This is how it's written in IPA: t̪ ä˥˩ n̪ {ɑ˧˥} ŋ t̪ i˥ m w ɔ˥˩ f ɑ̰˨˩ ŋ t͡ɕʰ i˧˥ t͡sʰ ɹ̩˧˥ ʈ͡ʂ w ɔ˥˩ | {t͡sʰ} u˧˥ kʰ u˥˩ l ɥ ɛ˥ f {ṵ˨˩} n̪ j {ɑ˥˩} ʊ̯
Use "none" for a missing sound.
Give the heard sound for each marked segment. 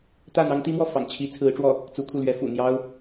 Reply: ɑ˥, t͡s, ṵ˨˩, ɑ˥

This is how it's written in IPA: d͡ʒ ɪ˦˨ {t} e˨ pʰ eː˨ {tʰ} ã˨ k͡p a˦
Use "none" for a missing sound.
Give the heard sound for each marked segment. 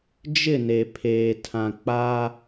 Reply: n, tʰ

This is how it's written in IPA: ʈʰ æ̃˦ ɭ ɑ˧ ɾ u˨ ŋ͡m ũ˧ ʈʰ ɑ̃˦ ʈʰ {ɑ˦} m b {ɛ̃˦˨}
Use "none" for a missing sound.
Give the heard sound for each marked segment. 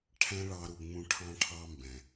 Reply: ɑ˦, ɛ̃˨

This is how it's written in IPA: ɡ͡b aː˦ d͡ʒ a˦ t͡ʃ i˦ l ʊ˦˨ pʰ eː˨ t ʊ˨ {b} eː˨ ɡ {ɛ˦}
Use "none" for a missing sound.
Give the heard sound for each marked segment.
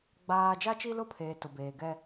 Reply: b, ɛ˦

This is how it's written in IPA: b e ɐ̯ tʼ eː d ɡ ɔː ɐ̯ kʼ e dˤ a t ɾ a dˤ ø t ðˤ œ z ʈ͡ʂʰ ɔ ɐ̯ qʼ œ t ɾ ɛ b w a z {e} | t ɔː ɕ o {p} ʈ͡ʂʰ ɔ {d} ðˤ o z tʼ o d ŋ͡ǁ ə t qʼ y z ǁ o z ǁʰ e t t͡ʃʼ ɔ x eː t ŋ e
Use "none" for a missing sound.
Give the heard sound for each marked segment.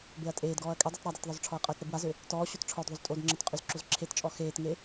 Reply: ø, t, d

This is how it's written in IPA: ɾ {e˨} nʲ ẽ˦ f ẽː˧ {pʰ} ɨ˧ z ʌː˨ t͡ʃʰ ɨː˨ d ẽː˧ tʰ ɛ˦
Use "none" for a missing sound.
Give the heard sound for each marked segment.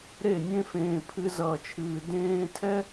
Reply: e˦˨, pʰ

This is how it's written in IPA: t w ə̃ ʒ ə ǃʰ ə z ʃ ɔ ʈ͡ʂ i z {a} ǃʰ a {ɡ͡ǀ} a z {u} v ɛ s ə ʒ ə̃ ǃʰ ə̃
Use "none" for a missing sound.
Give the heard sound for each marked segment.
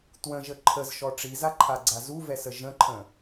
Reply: a, ɡ͡ǀ, u

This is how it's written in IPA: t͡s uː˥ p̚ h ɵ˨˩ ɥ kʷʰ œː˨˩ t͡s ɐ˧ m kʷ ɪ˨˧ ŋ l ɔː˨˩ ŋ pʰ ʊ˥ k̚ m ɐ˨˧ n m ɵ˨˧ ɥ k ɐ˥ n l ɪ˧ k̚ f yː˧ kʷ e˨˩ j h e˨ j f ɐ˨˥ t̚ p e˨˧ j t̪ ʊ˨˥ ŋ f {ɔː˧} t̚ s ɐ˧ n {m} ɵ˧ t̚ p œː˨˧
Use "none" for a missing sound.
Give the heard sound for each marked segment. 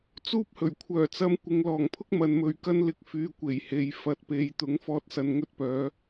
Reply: ɔː˧, ŋ

